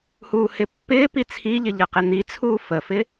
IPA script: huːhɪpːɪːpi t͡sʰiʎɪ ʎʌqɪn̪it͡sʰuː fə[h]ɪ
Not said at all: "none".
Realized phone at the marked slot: f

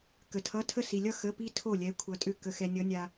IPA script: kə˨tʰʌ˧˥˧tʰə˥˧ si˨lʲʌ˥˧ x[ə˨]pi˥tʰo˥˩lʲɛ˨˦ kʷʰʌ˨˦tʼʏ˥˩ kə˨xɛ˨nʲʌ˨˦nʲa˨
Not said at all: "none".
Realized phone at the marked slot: ə˧˥˧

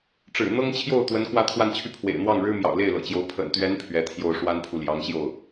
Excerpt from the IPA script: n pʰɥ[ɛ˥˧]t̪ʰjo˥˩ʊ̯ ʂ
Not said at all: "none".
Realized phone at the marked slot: ɛ˧˥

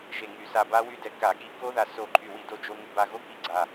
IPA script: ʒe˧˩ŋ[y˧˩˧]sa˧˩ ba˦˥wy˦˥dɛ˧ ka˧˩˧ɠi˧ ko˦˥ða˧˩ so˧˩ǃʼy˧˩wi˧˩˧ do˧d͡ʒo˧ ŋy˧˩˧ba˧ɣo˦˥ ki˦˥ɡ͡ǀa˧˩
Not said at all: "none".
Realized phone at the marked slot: y˧˩˧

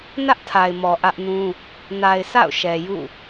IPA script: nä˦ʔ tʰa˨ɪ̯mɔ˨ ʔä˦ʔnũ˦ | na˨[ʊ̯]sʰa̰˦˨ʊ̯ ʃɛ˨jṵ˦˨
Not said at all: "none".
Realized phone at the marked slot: ɪ̯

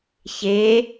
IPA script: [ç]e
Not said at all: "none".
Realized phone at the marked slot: ç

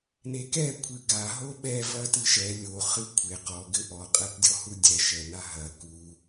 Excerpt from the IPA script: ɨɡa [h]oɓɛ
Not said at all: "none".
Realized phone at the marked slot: ɦ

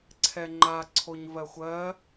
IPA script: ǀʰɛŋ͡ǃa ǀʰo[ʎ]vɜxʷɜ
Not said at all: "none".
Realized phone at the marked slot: ɲ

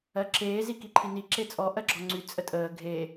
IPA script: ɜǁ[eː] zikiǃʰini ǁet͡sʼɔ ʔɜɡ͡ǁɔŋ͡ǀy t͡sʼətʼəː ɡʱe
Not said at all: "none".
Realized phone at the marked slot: eː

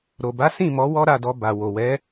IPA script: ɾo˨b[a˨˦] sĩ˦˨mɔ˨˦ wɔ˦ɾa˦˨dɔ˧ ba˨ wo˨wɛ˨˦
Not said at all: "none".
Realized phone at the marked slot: a˨˦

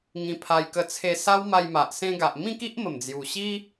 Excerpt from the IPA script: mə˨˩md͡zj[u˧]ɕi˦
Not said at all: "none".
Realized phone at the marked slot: u˨˩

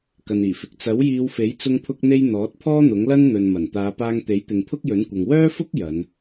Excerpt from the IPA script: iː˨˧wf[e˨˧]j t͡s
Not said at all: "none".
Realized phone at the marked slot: e˨˥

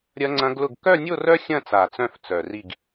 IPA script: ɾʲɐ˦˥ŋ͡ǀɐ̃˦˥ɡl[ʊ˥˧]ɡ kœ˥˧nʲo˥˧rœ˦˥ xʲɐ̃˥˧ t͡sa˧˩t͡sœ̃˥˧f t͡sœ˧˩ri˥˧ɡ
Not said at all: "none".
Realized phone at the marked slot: ʊ˥˧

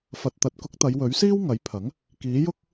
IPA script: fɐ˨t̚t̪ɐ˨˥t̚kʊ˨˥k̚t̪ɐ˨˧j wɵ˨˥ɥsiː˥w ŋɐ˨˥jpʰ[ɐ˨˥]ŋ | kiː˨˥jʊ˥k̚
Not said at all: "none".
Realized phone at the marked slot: ɐ˨˥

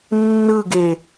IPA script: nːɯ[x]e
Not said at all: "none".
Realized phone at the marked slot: ɡ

